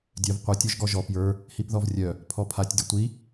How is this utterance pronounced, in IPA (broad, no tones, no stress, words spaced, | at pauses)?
dʲœv qʷœ tʲɔʒɡɔʒɔ pjə˞ | hipðɔvrʲœ | pʰɔpʰatʲ dʲətʷi